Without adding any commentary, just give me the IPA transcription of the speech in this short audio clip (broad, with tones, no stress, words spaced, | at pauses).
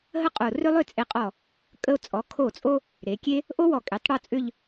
ɦə˥qʼo˧˩ rʏ˥lˠʏ˥˧t͡sʼe˧˩qʼɔ˧˩ | kʼə˧o̯t͡sʼɔ˩˧ kʰo˧˩t͡sʼo˧ | ɾe˩˧kʲe˥ | ʔo˥wɔ˧˩ kʼe˩˧tˤɽɔ˥˧t͡sʼʏ˥˧ʎ